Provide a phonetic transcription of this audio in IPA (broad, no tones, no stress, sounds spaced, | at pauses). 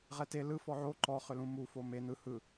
ʁ ɛ t e l ɯ f ɔ ʕ o ǃ ɔ χ ʏ l ũ m u f o m e n̪ ɯ h ɯ